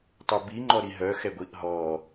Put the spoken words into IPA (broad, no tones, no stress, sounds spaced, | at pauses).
tˤ o b i ŋ͡ǃ ɔ ɾ i ɦ œ x ɛ ɡʷ i ʔ ɦ ɔ